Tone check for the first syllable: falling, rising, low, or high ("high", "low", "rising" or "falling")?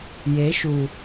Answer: rising